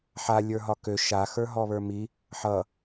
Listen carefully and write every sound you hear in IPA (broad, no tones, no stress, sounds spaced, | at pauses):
ħ a lʲ ə˞ ɦ ɒ k ø ʃ a x ə˞ ɦ ɔ β ə˞ m i | ħ ʌ